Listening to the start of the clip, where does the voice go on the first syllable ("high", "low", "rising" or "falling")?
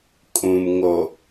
low